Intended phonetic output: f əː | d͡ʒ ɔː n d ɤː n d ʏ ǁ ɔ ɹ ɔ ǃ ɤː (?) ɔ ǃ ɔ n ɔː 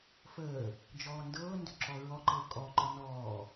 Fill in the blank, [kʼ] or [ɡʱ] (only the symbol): kʼ